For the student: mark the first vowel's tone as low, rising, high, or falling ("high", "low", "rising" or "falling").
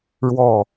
falling